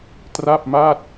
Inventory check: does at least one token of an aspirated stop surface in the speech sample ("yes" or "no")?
no